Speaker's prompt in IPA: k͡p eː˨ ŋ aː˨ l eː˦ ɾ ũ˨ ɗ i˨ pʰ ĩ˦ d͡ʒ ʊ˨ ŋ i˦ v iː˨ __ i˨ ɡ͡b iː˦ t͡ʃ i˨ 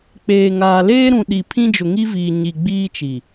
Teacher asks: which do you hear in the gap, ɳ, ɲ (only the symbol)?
ɲ